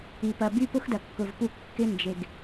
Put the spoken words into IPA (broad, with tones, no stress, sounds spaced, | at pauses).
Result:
i˨ p ɐ˨ b y˦ p ʊ˦ x d ɐ˨ kː ʊ˨ v p u˦˨ kː ɪ˦ n d͡ʒ e˨ ɡ